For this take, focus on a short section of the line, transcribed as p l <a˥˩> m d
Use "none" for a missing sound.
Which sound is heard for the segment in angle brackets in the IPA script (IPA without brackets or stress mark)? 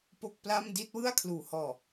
a˥˩